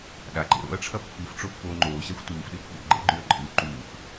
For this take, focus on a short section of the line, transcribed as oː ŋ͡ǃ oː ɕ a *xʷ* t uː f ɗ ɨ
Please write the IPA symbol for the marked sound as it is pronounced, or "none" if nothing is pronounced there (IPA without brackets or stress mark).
xʷ